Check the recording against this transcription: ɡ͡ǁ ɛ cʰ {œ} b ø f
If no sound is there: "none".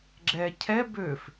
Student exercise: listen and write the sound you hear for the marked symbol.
ɛ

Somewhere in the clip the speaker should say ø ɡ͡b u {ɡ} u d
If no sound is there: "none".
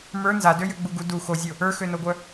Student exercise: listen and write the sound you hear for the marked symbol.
ɡ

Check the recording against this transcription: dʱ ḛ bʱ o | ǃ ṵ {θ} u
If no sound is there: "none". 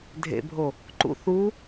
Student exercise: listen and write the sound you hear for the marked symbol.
θ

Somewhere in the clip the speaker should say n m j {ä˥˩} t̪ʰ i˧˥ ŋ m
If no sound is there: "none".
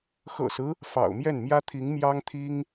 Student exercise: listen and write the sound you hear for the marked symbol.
ä˥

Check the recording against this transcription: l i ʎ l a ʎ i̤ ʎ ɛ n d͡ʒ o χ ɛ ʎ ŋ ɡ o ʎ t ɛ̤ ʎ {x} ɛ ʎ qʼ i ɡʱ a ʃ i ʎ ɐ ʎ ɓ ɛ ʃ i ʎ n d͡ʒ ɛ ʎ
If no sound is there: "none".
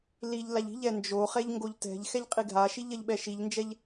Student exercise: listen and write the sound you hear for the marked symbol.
x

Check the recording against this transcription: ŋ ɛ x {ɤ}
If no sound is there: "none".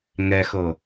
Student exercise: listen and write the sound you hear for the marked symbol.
ɤ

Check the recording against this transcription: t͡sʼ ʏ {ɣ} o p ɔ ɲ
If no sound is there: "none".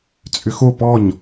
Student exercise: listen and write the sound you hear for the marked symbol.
x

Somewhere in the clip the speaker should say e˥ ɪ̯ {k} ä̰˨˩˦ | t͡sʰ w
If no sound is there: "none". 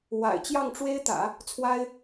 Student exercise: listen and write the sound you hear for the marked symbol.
t̪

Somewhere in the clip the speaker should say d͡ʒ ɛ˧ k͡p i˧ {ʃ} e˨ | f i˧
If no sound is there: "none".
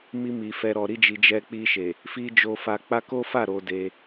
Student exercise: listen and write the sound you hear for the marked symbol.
ʃ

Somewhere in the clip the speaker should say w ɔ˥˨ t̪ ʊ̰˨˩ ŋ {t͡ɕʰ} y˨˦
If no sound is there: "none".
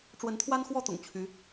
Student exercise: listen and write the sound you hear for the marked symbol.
t͡ɕʰ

